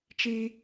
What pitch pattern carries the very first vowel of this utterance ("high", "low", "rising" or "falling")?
high